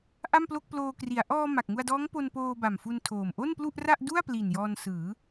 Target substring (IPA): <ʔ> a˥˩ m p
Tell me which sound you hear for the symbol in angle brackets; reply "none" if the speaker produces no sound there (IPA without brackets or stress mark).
ʔ